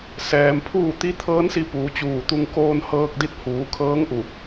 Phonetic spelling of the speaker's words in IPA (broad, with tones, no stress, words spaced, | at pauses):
sɛː˩mpʰuː˥˨ t̪i˧˥t̪ʰɤː˧˥nsi˧ puː˩˧t͡ɕuː˧˩t̪u˧ŋ koː˧nhɤː˧k̚di˧t̚ huː˩˧kʰɤː˧˥ŋʔu˧˩